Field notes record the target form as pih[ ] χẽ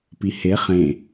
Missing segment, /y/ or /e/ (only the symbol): e